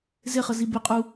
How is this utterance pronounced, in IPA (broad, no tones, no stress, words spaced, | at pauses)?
zɪχəzi bɪqʼu